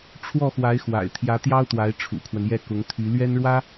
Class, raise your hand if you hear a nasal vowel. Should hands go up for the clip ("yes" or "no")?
no